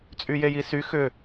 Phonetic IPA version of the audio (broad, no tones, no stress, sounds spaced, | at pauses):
t͡sʼ y j e j i s y x ʏ